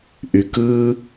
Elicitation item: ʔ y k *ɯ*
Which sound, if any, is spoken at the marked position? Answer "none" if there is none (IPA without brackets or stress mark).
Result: ɯ